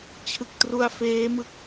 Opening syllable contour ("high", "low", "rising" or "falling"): low